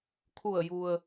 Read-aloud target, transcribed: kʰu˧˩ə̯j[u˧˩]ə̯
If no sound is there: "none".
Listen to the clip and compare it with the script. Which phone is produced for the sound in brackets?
u˩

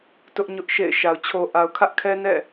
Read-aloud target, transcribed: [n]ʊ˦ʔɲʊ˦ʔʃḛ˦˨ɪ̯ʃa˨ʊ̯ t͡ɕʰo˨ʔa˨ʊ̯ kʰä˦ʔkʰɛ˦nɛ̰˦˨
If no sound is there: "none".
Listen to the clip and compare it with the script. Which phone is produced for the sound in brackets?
t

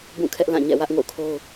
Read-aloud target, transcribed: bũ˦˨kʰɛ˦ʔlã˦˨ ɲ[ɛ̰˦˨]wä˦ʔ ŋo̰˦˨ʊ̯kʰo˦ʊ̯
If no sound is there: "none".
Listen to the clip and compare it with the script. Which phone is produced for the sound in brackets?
ɛ̰˦˨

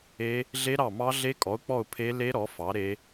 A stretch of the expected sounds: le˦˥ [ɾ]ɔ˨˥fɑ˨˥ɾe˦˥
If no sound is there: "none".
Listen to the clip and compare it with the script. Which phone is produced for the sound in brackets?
ɾ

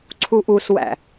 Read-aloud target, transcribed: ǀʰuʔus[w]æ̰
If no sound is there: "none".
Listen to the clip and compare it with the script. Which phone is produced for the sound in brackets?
w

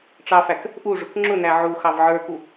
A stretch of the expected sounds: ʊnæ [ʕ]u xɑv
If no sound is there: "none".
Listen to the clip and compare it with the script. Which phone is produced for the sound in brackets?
ʕ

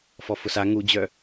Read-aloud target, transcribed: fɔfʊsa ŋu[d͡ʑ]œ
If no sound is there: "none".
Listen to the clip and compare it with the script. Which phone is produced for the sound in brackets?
d͡ʑ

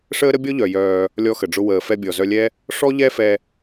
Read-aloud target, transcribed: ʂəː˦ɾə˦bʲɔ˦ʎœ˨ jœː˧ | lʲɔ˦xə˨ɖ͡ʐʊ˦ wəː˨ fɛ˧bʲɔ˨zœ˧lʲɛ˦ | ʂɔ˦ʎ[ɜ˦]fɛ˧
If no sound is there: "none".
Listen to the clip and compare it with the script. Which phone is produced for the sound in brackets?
ɛ˦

